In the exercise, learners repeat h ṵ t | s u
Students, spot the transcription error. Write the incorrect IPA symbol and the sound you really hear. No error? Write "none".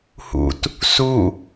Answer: none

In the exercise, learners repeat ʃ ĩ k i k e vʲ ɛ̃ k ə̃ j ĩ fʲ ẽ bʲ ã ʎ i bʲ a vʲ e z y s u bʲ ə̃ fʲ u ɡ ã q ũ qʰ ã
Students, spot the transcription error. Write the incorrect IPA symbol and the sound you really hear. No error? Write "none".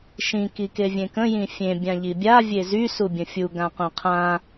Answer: ɛ̃ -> ẽ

